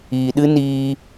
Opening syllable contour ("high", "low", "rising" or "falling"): low